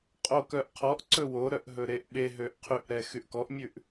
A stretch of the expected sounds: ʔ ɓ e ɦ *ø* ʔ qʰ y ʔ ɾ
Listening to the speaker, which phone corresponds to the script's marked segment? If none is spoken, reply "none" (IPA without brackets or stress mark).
ø